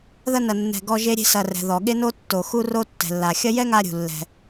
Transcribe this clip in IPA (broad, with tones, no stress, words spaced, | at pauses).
ðɐ˦nɐ˨ nːɛ̤˨ ɡɔ˦ʒe˥ɾʲe̤˥ sɐ˨rɛ̤˩ ðɔ˩ɠe˥no˥ tːo˨xu˥ro˥ tːɛ̤˨lːa˨ xʲɐ˦jɛ˥ ŋa˦ɾʲṳ˨lːɛ̤˨